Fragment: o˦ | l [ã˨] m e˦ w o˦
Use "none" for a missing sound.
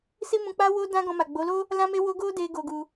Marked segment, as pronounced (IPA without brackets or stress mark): ã˦